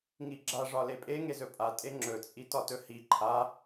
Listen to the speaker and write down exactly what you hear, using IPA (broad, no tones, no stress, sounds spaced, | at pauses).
ŋ i ɡ͡ǁ a ʐ ɒ l e pʼ e ŋ e z ɵ pʼ a tʼ e ŋ͡ǁ ɵ t͡sʼ i t ɒ t ɵ h i ǃʰ a